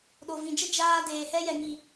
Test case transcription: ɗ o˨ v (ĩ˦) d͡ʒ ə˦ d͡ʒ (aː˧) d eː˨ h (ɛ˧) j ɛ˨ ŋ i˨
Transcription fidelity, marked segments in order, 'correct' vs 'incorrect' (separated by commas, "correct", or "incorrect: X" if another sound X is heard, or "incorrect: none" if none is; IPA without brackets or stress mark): incorrect: ĩ˨, correct, correct